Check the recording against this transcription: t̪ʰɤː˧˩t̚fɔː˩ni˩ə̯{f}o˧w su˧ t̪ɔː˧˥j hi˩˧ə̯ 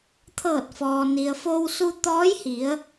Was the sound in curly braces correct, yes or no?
yes